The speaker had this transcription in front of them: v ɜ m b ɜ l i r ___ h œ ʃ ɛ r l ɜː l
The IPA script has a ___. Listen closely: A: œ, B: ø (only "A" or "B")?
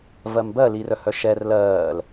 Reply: A